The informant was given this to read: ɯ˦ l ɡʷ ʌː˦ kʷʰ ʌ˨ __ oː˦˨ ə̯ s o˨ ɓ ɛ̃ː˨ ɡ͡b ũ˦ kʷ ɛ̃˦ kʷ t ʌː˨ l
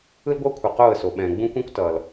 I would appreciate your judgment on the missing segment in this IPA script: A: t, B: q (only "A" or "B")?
B